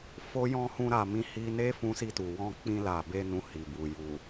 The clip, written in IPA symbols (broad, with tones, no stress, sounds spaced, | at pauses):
f o˦ j ɔ̃˦ h ũ˧ ɾ a˨ m ĩ˧ h i˧ n e˦ f ũ˦ s i˦˨ t u˨ w ɔ̃˧ k͡p ĩ˧ l a˨ b e˧ n ũ˧ h i˨ b u˨ j u˨